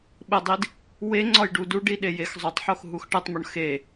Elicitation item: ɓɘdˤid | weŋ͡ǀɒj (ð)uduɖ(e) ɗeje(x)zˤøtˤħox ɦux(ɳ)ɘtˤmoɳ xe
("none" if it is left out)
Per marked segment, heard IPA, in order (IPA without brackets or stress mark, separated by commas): ɖ, i, x, ʈ